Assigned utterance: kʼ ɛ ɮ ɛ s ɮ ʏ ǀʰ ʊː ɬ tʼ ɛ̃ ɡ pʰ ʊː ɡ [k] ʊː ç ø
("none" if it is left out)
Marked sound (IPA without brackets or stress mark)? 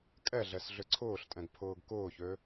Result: k